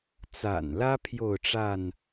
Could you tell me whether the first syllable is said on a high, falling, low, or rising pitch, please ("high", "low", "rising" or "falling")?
low